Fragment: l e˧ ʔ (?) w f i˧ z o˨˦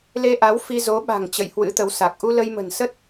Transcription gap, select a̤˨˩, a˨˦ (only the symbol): a˨˦